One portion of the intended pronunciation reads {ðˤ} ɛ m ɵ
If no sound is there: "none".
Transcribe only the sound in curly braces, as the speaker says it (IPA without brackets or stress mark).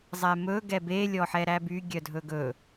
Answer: zˤ